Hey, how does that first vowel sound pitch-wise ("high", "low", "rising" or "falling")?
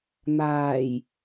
low